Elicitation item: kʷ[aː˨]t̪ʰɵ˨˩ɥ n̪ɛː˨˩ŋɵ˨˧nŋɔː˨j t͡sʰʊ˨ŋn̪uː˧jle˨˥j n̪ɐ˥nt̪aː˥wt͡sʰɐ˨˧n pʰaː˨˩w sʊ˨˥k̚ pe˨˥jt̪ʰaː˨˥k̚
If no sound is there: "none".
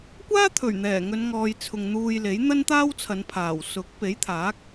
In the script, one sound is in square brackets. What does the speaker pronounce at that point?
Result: aː˥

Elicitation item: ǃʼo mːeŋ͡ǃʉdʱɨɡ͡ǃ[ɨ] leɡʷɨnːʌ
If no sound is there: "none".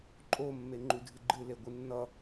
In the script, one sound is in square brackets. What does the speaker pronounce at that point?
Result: ɨ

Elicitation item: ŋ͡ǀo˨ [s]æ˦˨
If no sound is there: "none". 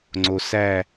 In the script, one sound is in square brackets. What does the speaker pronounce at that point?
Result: s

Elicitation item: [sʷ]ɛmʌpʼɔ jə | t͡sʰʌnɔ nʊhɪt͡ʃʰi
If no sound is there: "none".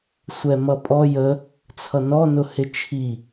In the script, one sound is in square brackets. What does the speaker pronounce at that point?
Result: sʷ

